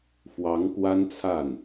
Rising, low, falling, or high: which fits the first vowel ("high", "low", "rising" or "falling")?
rising